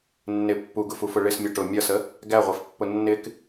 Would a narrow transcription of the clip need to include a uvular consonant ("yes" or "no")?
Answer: yes